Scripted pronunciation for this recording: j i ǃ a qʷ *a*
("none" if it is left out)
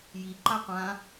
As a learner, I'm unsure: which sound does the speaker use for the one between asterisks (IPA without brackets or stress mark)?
ã